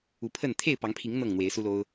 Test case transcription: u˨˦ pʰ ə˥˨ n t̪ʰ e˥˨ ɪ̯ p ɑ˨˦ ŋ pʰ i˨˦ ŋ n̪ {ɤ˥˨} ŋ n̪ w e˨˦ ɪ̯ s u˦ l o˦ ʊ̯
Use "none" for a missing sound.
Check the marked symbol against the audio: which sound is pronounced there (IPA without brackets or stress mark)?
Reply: ɤ˥˨